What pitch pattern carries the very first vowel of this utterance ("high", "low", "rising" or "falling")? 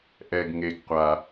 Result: low